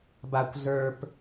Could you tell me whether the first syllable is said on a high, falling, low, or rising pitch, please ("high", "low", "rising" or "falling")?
high